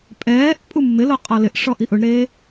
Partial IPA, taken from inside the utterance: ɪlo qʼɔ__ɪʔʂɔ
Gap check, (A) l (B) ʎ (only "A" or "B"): A